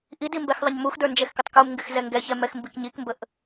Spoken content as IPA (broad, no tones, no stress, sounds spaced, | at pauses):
ʔ i d i m b ɛ x ðˤ ə ɲ m u x d ə˞ n d͡ʒ ɛ x k ə tˤ k u m ŋ ɡ ɪ x z ɛ ŋ ɡ ɛ ç ɛ m ɛ x m b i k ɲ i k m b ə ʔ